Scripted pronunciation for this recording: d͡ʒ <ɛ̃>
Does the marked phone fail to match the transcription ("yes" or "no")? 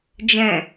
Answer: no